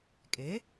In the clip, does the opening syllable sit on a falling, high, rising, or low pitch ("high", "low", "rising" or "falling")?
rising